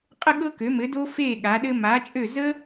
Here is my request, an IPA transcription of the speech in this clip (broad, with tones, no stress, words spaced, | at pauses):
qʼə˦ɠɤ˦ kø˨˦mɘ˨˦do˦ feː˦˨ ɠa˨˦ɗɘ˦ ma˨˦t͡ʃʼø˦˨ zə˦